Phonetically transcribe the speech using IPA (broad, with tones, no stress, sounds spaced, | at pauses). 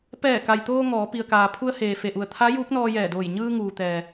p ɛː˧˩ k a˩ j t̪ oː˧ ŋ ɔː˩˧ p i˩ ə̯ k aː˩ pʰ u˧ ə̯ h eː˩ f e˩ ʔ u˩ ə̯ t̪ʰ a˧˥ j uː˧˥ k̚ n ɔː˧ j ɛː˧˩ d oː˧˩ j ɲ ɯː˧ ŋ uː˩ t̪ ɛː˩